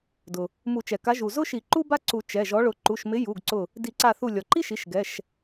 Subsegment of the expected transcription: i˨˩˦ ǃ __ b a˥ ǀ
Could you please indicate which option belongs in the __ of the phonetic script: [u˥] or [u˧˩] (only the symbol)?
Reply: u˥